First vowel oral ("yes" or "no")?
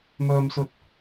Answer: yes